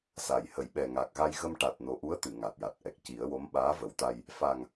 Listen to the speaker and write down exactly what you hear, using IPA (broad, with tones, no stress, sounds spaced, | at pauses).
s a˨˩˨ j h ə˨˩˨ j ɓ ɛ˨˩ ŋ a˨˩ k̚ ɣ a˧ j ɣ ə˧ m ʈ a˨˩ t̚ n o˨˩ ʔ u˧˥ ə̯ t̪ ɨ˨˩˨ ŋ a˨˩ t̚ j a˨˩ t̚ ʔ ɛ˨˩ k̚ c i˨˩˦ ə̯ w o˧˥ m ɓ aː˧˥ v ə˨˩˦ w t̪ a˧ j | f a˨˩ ŋ